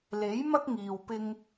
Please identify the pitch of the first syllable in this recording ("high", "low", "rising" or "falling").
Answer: rising